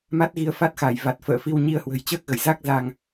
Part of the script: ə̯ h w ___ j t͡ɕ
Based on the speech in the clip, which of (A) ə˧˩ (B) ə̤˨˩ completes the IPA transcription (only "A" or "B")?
B